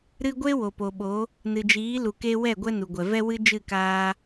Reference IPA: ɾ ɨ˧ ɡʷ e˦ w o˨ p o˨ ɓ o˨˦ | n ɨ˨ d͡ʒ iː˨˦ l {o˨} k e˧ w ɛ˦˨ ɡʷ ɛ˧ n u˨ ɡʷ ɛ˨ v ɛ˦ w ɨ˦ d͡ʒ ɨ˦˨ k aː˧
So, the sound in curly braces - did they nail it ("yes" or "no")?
no